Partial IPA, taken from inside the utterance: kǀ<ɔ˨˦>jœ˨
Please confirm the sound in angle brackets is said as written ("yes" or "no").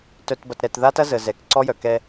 no